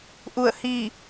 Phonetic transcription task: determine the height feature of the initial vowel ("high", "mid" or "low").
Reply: high